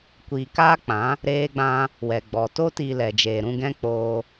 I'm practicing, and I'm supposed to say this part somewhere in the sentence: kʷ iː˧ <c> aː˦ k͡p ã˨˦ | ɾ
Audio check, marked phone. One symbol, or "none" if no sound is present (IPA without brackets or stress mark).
k